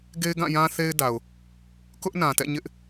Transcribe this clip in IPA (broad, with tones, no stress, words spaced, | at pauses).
ɡe˦ɪ̯ɡã˦˨jã˦θe˦ɪ̯ da˨ʊ̯ | kʊ˦ʔnã˨tɛ̰˦˨ ɲɪ˦ʔ